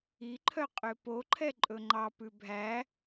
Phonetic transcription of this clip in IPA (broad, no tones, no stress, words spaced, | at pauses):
iǃʰœ qʼøpoǃʰɛ ǃʼɵŋ͡ǃɑpʉ bʱæ